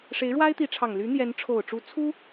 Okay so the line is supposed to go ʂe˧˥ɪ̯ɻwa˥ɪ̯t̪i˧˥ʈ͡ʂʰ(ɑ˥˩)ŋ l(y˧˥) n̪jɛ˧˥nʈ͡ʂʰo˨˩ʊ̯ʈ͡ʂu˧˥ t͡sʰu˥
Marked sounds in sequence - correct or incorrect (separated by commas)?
incorrect, correct